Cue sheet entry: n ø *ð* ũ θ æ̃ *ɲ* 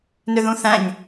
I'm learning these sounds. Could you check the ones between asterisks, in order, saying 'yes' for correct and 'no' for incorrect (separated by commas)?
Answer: yes, yes